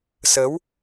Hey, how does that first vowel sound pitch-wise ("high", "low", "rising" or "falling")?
rising